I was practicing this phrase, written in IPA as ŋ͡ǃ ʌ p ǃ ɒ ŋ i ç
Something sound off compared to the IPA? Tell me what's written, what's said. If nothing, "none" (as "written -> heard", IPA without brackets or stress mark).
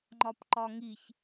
ʌ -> ɒ